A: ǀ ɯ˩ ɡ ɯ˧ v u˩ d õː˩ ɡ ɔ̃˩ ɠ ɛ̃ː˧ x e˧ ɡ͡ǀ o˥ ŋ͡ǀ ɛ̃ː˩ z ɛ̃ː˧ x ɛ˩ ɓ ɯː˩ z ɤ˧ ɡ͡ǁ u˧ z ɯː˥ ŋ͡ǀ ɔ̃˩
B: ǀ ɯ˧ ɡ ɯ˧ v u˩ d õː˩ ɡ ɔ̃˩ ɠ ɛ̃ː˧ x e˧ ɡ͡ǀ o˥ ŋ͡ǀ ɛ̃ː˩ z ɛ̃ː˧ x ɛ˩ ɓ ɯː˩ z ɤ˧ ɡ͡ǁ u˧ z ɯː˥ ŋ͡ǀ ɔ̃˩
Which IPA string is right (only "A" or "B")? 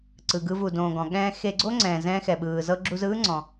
A